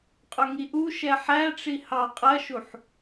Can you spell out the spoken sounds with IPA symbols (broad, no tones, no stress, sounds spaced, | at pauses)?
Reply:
qʼ ʊ ŋ i ʔ u ʃ ɛ ħ æ ʈ͡ʂ i h ɑ qʼ ɜ ʃ u ħ